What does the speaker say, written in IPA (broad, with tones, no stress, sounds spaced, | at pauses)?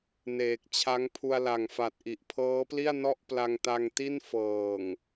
n eː˨˩ k̚ t͡ɕʰ a˦˥ ŋ pʰ u˧ a̯ l a˨˩ ŋ f a˨˩ t̚ ʔ i˨˩ ʔ pʰ ɤː˦˥ p l i˥˩ a̯ n ɔ˥˩ ʔ p l a˧ ŋ t a˧ ŋ t i˥˩ n f ɤː˨˩ ŋ